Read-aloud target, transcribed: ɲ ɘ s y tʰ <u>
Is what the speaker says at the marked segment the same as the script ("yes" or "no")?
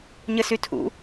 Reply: no